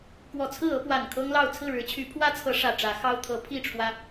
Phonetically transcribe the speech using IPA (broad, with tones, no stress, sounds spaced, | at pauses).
k w ɔ˨˩ t͡sʰ ɹ̩˥˨ ɤ˦ p w a˨˩ n kʰ ɤ˦ ŋ l ɑ˥˨ ʊ̯ t͡sʰ ɹ̩˥˨ ɻ ɻ̩˨˦ t͡ɕʰ y˨˦ pʰ w ä˦ t͡sʰ ɤ˨˦ ʂ ä˨˩ ʈ͡ʂ ä˨˦ x ɑ˦ ʊ̯ t̪ʰ ɤ˨˦ pʰ i˥˨ ʈ͡ʂʰ w ä˦